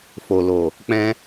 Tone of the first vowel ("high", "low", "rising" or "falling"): low